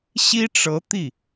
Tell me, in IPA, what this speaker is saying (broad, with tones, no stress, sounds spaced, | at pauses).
ɕ i˥ ʈ͡ʂ ɤ˧˥ t̪ i˥˩